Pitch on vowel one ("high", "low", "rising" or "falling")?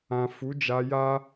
low